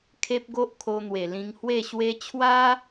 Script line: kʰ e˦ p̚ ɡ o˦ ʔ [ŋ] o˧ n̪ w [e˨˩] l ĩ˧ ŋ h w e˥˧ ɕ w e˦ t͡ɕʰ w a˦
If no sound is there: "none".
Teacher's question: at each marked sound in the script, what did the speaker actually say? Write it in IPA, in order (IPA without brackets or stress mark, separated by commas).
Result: kʰ, e˨˩